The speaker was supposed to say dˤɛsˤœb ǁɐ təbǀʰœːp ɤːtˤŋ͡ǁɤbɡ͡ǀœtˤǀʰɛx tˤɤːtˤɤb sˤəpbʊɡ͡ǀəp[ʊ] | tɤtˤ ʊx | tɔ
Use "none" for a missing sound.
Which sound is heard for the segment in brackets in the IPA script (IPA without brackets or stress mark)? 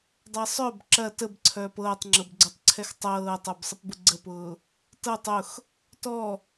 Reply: ʊː